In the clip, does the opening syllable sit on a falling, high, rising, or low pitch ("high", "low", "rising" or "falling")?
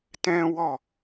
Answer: high